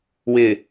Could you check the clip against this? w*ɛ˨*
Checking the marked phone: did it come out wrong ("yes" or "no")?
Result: yes